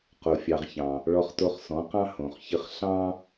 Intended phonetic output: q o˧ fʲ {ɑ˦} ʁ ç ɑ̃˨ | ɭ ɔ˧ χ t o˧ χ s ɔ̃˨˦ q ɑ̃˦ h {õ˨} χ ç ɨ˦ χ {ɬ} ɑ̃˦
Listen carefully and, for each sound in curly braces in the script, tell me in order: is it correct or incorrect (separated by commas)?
incorrect, correct, correct